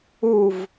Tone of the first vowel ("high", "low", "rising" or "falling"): falling